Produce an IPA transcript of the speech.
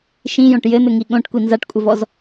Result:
ʃ ĩ j õ ʈ j ɘ n̪ ɘ ŋ i ɠ õ ʈ kʷ i n z a ʈ kʷʼ ɘ v ɔ z

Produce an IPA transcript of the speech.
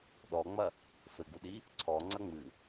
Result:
ɗ ɔ ŋ͡m ɐ | f ɘ ɡ u ɗ i | ǀʰ ɔ ŋ͡ǀ ɐ ŋ͡m ɨ

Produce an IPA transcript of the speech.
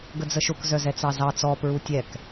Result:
ɡ ə d͡z ə ʃ ʊ k z œ z ɛ t͡s ɑ z ɑ t͡s ɔ p ɹ u tʲ ɛ k

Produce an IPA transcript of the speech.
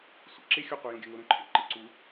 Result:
sʷ ḛ ǁ e xʲ o qʷ ʌ j õ ɡʲ ə˞ ŋ o ɾ õ ǃʰ ḛ ǃ ɪ ǀ u

